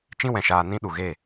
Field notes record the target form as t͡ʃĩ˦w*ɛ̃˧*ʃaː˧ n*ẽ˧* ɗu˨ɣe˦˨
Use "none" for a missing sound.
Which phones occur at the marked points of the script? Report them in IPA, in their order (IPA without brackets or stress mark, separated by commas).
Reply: ɛ̃˨, ĩ˧